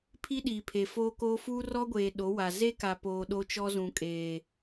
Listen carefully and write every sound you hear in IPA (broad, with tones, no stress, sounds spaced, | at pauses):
pʰ i˦ ɗ iː˨ pʰ e˨ f oː˦ k oː˦ f uː˦ r ɔ˦ ɡʷ eː˨ ɗ o˨˦ w a˨ z e˦ k a˨ p oː˨ ɗ o˦ t͡ʃ ɔ˦ z ũ˨ kʼ eː˨